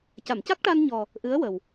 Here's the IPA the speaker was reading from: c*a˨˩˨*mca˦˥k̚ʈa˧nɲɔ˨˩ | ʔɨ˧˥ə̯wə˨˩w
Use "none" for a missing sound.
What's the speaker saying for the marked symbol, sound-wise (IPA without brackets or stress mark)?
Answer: a˨˩˨